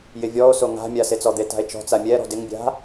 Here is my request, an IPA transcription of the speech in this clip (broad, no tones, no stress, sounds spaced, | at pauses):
j ɪ vʲ ɔ o̯ s o ŋ a̤ mʲ a s e t͡s ɔ d̪ e t a̤ e̯ t͡ʃ ɔ̤ t͡s a mʲ ɛ ɾ ɔ̤ d ɪ ŋ bʲ a̤